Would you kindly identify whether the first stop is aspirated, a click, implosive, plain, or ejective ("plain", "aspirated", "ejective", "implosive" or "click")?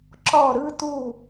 click